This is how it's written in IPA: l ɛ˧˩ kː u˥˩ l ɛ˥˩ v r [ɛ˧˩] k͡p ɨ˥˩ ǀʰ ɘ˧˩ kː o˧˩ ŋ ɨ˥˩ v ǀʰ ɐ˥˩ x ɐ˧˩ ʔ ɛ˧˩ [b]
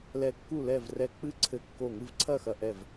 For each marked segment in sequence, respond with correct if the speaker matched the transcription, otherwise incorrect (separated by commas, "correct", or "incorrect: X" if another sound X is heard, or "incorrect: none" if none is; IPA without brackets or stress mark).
correct, incorrect: v